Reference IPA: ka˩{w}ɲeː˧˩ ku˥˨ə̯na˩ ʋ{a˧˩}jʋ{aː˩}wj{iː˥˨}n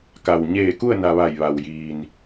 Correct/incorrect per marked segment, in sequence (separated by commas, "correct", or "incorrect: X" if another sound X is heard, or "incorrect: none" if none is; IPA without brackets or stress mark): correct, correct, incorrect: a˩, incorrect: iː˩